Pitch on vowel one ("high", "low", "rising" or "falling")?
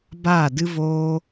falling